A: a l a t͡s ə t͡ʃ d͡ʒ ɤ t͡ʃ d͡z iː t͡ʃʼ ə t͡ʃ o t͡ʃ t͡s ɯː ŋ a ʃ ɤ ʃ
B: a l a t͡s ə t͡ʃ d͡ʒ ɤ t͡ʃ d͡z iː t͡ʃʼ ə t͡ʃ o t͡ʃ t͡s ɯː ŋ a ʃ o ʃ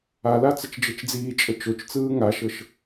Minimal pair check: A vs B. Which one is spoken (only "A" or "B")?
A